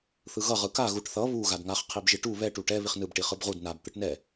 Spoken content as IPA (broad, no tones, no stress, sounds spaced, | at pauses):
θ ɯ ɣ ʌ ʁ ɯ k a ɣ u ʈ θ ʌ β u ɣ a d ŋ a χ qʰ i b ʒ i ʈ u β ɛ ʈ u ʈ ɛ β i χ n ɯ b ʈ i χ ɯ b ʁ u d n a b t̪ ɯ ʈ n ɛ